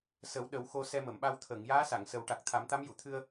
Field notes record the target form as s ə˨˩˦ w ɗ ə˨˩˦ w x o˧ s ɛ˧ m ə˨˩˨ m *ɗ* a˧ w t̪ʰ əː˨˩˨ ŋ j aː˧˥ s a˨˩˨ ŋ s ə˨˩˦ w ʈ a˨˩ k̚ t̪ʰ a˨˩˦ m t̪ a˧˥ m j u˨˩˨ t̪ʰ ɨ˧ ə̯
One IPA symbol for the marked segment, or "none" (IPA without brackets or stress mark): ɓ